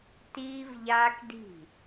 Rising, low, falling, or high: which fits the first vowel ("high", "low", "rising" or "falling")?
high